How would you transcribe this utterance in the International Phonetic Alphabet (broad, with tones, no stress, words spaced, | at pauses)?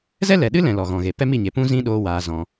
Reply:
zɛ˦lɛ˨ɗɨ˦lɛ̃˨ lɔ˨ɣɔ̃˨ɣe˨ pɛ˦mi˦˨ɲe˨ pũ˦zĩ˦ ɗoː˦waː˧zɔ̃˧